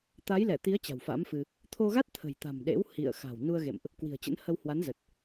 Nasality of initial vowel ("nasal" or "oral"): oral